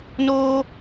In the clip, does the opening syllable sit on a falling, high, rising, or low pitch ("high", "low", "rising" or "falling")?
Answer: high